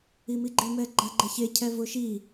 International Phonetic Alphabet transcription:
imiɡ͡ǃɪ mɛɡ͡ǃaɡ͡ǃɛçe cʰɛvʊʃi

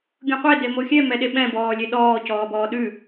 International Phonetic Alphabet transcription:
ɡʲõqʷe demoxʲɛ mɛɗeɓɛ̃ bɔːlʲeɗɔː cɔːbɔːɗʉ

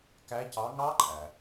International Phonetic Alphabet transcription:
kæ˨˦cɑ˨˦ ŋɑ˦˥ǃʼæ˩

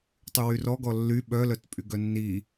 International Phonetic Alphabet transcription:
tˤywyrɔɡɔ lːy ɓœlœt pʼyɡœnːi

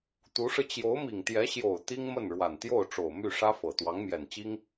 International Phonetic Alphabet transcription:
t̪u˧˥ʂɻ̩˧ t͡ɕjo˧˥ʊ̯mi˨˩ŋt̪jɛ˧˥ ɕjo˨˩ʊ̯ t̪i˥ŋmə˥˩n ɻwa˨˩nt̪jo˥˩ʊ̯ʈ͡ʂo˨˩ʊ̯ my˥˩ʂä˥fɤ˨˩ t̪wɑ˧˥ŋmjɛ˨˩nt͡ɕi˥ŋ

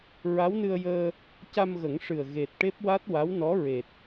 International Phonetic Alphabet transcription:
ɹa˧˥wnɨ˧ə̯ jəː˧ | ca˧mɣə˨˩˦ŋʂɨ˨˩ə̯ ɣe˨˩t̚ʈe˦˥p̚wa˦˥t̚ wa˧˥wnɔ˧˥ ɹe˨˩t̚

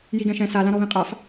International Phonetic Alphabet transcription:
jiɡɛ̃ʃɛ̃ sa lãɾɔβĩqʼaf

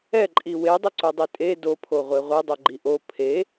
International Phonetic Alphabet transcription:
ɛǃʼi wedˤʊǀudˤi tʼe dopʰoʁʷe ʁʷedˤoɡ͡ǃi ʔo pʰe

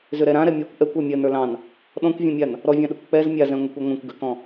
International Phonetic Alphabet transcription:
zʏɾɛɾã ɾɛmʲə˞kʷ ʔɛkʷ ɜmʲɜn ə˞lɑ̃n | ɗɔ̃kʷvʲɛ̃mʲan | ɾɔvʲɑ̃ɗɛkʷ k͡pɛz mʲazɛ̃ ŋʷɛkʷaŋʷãkʷ ɡʏkɔ̃

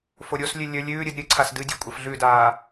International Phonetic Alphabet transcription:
foɾʲoslʲʉ lʲɵ lʲʉːɾʲɨd ɾʲɨǀʰas dɨdʲɵ kʷʼɐfɮʉdaː

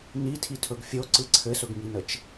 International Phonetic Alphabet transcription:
nitʰitʰɵɡ fʲoǀɯ ǀʰɘsɵɡŋinət͡ʃ

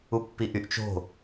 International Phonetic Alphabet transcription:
upːiʔyʔ t͡ʃo̤

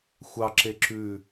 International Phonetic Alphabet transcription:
xʷɑǁe ǁʉ

